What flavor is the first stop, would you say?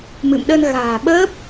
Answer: implosive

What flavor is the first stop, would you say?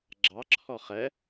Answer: click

